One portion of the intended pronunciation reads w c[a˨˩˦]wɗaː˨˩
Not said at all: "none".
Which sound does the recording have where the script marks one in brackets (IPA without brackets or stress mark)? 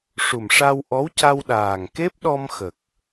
a˧